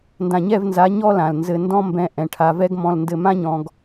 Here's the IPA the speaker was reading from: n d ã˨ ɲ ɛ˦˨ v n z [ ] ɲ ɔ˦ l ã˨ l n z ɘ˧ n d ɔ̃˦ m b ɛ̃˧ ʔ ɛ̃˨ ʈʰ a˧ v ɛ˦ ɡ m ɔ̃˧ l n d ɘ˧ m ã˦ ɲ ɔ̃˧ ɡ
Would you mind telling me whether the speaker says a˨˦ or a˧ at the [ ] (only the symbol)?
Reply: a˨˦